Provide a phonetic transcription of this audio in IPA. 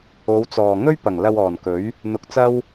o˨˧wt͡sɔː˨ ŋɵ˥ɥ pɐ˨˩ŋ lɐ˧wɔː˨˩nkɵ˨˥ɥ | n̪ʊ˧k̚t͡sɐ˥w

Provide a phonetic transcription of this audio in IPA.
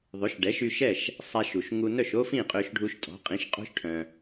ðˤø˩˥ʃɖɛ˩˥ʃy˧ ʃɛ˥˩ʃ | sˤa˧ʃ u˩ʃŋu˧ nœ˥˩ʃo˥ fĩ˥˩qʼø˧ʃɖʱu˧ʃ tʼɔ̤˩˥qʼĩ˩˥ʃ qʼo̤˥ʃʈʰœ̃˩

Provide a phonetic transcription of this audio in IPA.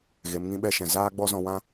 ɣe˨˦mŋĩ˦ɓɛ˦ʃɛ̃˨ zaː˦ɡ͡bɔ˦zɔ̃˧wã˦

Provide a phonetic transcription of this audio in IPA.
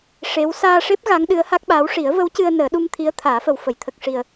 ʂe˧˥w saː˧ʂe˦˥p̚ ɣa˧˥ŋɗɨ˧˥ə̯ ha˦˥k̚ɓaː˧˥w ʂi˨˩˦ə̯və˧˥wcɨ˧ə̯ nəː˨˩˦ɗu˧m t̪ʰi˧˥ə̯t̪ʰaː˨˩˦fə˨˩w fə˨˩˨jt̪ʰə˨˩k̚ʂi˨˩ə̯

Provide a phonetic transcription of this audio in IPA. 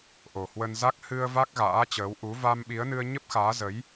ʔo˨˩ hwə˧nza˦˥k̚ hɨ˧ə̯ va˦˥k̚ɣa̰ː˧˥t͡ɕəː˨˦w ʔu˨˦va˧mɓi˨˦ə̯nɨ˧ə̯ ɲə˦˥p̚xaː˨˦zə˨˦j

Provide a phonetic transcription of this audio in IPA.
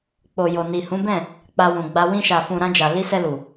k͡po˨jo˨ ni˨ hũ˨˦bɛ̃˦˨ | k͡pa˧wũ˨ɡ͡ba˧ wĩ˧ʃa˨fũ˨ ɾã˧d͡ʒa˨ li˧sɛ˧ lu˨

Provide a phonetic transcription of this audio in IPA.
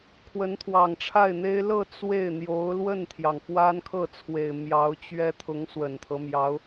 kʰwə˧˥nt̪ʰwɑ˨˩ŋʈ͡ʂʰa˥˩ɪ̯n̪e˥ɪ̯ lɤ˥˧ t͡swe˥˩ɪ̯ n̪jo˧˥ʊ̯lwə˥˩nt̪ʰjɑ˩ŋ fwa˥nkʰɤ˥˩t͡sʰwe˨˩ɪ̯ mjɑ˧˥ʊ̯t͡ɕɥɛ˥ t̪ʰʊ˧˥ŋswə˨˩nt̪ʰɤ˦ mjɑ˧˥ʊ̯

